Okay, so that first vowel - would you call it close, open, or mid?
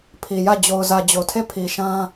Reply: close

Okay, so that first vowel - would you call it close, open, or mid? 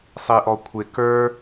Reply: close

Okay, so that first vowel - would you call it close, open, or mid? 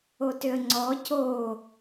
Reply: mid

